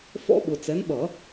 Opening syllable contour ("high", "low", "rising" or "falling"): high